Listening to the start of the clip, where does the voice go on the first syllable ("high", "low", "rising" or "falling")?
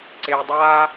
low